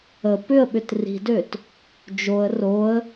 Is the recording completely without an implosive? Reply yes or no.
no